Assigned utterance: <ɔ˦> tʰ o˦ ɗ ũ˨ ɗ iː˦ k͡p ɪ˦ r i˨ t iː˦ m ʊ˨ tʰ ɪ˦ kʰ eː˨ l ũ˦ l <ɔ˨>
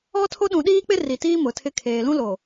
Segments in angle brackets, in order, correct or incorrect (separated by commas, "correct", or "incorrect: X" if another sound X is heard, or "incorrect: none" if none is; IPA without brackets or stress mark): correct, incorrect: o˨